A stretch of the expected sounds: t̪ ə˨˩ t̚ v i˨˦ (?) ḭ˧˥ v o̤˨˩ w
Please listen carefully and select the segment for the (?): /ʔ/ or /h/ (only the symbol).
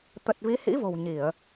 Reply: h